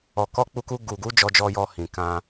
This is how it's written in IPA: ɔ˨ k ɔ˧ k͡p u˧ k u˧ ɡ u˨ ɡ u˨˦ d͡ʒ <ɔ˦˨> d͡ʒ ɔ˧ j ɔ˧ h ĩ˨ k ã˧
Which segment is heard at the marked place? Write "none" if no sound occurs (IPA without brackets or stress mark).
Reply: ɔ˧